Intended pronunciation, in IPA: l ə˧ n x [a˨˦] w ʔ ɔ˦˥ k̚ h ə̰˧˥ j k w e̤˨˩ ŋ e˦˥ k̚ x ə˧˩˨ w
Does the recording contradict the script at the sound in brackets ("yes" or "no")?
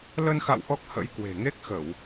yes